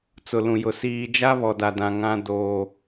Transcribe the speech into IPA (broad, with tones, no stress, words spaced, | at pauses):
t͡sʊ˨lũ˨jʊ˨ siː˨ d͡ʒa˦βɔ˨ da˨dã˨ ŋã˦ doː˦